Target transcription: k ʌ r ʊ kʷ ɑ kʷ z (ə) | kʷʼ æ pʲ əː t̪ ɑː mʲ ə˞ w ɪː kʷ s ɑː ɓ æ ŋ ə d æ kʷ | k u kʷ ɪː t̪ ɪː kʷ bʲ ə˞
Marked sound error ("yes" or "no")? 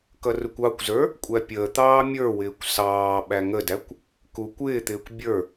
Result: yes